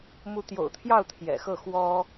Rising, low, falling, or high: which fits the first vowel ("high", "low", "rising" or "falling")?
rising